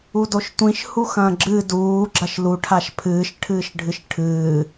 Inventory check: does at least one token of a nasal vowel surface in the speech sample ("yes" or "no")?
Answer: yes